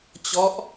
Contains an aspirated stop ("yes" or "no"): no